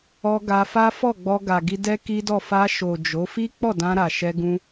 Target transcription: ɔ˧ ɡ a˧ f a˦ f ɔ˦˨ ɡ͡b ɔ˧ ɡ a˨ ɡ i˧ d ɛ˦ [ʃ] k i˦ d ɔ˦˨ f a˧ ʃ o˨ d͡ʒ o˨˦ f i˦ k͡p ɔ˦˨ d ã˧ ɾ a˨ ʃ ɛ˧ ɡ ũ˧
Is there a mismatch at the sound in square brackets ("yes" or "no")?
yes